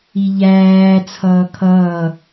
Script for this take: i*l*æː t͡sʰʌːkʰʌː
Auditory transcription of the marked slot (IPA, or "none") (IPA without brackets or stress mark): ʎ